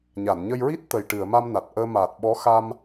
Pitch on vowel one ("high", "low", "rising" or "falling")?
low